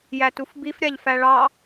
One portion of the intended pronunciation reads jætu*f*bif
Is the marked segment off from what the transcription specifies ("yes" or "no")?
no